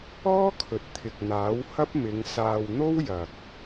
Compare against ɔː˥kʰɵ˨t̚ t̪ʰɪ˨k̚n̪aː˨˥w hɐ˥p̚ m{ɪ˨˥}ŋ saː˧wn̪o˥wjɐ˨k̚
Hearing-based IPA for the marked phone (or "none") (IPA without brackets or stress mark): ɪ˨˧